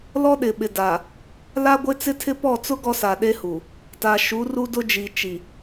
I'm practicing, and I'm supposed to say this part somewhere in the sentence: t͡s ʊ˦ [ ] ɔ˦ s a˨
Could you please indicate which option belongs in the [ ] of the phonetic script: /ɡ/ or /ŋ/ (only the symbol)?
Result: ɡ